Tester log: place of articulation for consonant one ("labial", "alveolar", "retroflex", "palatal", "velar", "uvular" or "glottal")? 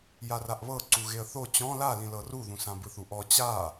palatal